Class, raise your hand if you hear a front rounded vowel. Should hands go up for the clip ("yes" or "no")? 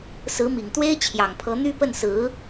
yes